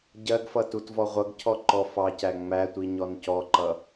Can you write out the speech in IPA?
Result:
ɟɜɡfʌ tutvɔʁʷʌɡcʰɔ ǃɔfɑcæ ŋ͡mætʷi ɲɔncɔǃʌ

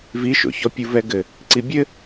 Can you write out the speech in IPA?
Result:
viʃo̰çɔ pʲuvɛɡɘ | ǀibʲɘ

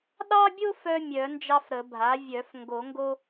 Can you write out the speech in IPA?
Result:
ɗɑ˦bʲo˦f œ˦mʲœ˨˩˦ nd͡ʒɑ˦fɾə˨˩˦bʱa˩˥ vʲœ˨˩˦f ŋɡo˨˩˦ŋɡo˦

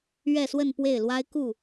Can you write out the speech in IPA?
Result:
ɥɛ˥˧swə˥˧n pwe˥˩ɪ̯lwa˥ɪ̯ ku˥˩

